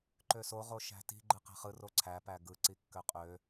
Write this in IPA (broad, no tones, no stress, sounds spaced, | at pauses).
ǃ ø s o ʁ o ʃ æ̤ t i̤ ɡ͡ǃ ɯ q æ̤ χ ɯ r o ǀʰ æ p æ ɡ ɯ ǀ i kː ø qʼ ø